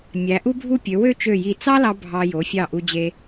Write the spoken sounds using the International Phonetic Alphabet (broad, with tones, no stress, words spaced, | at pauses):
mʲæ˩˧ʔu˥bʱu˥˧pʲø˩˧ wø˥˧t͡ʃø˧˩ji˧˩ t͡sɑ˥lɑ˧ bʱɑ˧ jo˩˧fʲɑ˧˩ ʔu˧d͡ʑe˧